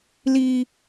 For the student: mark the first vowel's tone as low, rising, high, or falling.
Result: low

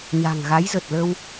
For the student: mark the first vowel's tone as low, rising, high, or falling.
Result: low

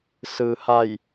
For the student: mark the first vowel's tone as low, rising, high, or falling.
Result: low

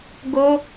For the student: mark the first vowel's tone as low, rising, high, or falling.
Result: high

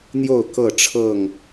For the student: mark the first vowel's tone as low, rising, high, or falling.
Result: falling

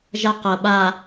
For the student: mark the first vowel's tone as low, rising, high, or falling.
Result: high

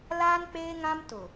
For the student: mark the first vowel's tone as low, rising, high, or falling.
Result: high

